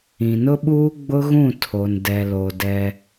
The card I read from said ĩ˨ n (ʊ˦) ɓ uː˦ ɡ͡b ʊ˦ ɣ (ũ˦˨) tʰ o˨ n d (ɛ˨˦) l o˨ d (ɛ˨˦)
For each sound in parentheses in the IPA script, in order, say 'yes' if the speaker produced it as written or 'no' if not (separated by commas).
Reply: yes, yes, no, no